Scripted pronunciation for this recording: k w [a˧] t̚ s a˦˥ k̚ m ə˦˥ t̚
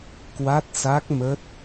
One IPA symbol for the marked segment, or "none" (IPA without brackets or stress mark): a˦˥